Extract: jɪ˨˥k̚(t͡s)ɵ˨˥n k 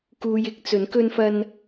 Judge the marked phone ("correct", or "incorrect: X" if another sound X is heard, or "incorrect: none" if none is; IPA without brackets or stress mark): correct